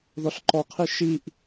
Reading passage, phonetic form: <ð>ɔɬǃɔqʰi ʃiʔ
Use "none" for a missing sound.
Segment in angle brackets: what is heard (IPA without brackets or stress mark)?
ð